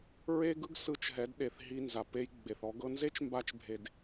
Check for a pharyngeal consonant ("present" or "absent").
absent